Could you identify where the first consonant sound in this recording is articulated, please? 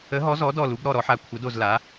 glottal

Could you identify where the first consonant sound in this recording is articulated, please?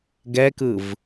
velar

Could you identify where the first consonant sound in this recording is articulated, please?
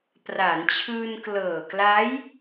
labial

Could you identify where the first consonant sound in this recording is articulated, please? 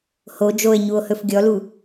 glottal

